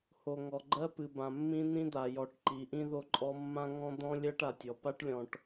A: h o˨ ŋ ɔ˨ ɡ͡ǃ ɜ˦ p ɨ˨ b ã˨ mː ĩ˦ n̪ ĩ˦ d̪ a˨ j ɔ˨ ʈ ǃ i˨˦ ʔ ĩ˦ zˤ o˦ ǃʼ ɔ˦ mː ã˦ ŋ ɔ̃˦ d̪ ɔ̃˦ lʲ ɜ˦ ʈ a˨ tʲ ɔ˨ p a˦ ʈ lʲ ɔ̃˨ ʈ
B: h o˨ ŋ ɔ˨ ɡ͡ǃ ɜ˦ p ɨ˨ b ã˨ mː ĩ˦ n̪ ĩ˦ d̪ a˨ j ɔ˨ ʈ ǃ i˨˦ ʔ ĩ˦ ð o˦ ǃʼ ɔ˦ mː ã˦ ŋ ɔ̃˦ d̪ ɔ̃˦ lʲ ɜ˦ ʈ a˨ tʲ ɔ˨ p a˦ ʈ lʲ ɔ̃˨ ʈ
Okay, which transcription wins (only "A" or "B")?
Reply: B